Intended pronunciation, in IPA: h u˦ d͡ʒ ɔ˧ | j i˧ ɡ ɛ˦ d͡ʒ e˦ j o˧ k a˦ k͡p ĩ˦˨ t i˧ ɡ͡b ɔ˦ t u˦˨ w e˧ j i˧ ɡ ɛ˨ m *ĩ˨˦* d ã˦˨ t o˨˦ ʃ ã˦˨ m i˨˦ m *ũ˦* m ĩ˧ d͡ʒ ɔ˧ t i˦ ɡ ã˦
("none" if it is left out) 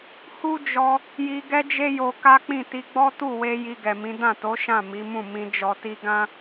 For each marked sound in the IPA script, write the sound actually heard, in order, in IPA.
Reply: ĩ˨˦, ũ˦˨

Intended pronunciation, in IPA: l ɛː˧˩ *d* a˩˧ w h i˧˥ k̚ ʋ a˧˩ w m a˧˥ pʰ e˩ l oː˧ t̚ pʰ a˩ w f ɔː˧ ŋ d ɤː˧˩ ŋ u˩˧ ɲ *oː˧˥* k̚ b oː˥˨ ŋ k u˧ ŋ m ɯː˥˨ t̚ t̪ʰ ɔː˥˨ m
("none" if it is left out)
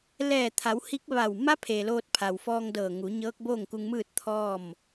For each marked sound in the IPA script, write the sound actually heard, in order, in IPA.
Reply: t̪ʰ, ɤː˧˥

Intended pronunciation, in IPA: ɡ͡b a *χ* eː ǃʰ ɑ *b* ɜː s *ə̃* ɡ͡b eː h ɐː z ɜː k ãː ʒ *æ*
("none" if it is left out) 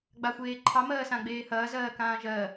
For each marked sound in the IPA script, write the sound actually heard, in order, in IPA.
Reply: xʷ, m, ã, ɜ

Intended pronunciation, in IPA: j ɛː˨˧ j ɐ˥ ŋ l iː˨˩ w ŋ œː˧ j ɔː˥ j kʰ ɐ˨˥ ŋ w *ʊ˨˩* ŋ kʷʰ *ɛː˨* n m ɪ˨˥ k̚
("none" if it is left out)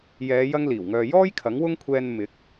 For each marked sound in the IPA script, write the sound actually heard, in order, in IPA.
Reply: ʊ˥, ɛː˧

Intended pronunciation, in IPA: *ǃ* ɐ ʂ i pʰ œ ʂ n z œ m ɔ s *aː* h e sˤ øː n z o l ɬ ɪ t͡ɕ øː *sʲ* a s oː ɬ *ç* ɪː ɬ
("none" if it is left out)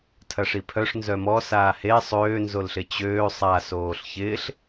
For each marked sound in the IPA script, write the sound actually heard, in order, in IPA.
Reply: tʰ, aː, sˤ, ç

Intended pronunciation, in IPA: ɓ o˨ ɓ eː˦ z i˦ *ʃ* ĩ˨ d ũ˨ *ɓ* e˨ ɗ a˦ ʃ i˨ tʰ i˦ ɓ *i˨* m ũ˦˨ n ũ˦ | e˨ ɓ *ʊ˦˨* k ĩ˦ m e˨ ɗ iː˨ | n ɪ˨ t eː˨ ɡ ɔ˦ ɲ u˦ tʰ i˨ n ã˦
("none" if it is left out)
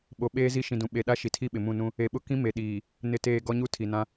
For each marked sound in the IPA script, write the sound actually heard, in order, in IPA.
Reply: ʃ, ɓ, ɪ˨, ʊ˦

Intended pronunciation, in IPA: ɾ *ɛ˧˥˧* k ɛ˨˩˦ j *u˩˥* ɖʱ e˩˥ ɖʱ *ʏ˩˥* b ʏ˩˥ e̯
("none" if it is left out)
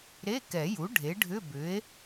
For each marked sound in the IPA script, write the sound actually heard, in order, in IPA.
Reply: e˧˥˧, u˩˥, ʏ˧˥˧

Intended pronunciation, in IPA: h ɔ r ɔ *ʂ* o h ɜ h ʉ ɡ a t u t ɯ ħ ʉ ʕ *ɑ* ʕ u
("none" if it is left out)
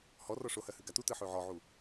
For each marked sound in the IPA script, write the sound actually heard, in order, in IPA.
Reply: ʂ, ɔ

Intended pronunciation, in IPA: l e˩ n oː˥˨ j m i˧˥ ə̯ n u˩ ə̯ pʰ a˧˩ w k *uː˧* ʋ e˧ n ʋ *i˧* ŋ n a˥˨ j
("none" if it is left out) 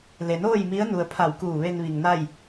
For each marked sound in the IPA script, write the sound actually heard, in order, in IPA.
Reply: uː˧˩, i˩

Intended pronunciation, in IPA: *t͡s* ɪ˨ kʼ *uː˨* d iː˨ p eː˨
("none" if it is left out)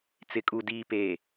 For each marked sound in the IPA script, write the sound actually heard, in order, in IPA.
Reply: t͡s, u˨

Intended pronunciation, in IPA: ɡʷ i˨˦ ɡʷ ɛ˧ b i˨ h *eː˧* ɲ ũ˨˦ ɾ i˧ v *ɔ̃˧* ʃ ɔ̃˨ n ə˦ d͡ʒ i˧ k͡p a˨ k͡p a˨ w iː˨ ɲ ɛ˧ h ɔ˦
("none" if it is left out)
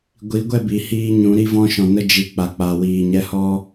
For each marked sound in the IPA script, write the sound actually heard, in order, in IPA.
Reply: iː˧, ɔ̃˧

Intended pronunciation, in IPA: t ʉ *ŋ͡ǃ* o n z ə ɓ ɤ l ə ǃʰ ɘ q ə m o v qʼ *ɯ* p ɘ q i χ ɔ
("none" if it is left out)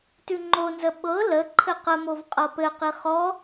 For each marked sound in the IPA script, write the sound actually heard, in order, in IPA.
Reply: ŋ͡ǃ, ɤ

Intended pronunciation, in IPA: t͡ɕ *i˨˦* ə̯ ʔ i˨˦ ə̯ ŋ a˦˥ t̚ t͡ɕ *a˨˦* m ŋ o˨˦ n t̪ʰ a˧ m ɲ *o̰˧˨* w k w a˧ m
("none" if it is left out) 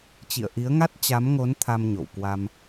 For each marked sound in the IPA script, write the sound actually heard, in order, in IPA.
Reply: ḭ˧˨, a˨˦, o̰˧˨

